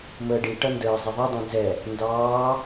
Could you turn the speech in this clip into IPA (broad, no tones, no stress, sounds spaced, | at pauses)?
m əː ɖ i ʈ ʌ n d əː zˤ ɛ ðˤ ɛ dˤ ɑ̃ n z ɛ | n d ɑː